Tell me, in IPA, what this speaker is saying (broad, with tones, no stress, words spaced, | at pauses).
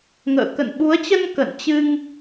ŋə̰ː˧˨ kə̰˧˨nɓu˨˦ə̯t͡ɕə˧n kə̰˧˨nt͡ɕɨ˧ŋ